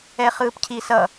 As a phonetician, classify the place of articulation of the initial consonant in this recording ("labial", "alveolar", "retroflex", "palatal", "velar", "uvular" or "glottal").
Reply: uvular